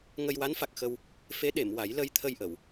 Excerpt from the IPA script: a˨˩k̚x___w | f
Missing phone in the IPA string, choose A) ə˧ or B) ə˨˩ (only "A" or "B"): A